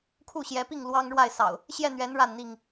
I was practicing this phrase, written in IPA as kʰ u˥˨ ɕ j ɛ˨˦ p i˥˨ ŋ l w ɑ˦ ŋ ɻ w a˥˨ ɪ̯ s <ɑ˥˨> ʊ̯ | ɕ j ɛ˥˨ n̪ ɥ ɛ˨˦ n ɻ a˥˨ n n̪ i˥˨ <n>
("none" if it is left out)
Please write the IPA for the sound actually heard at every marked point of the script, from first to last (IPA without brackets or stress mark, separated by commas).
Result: ɑ̰˨˩, ŋ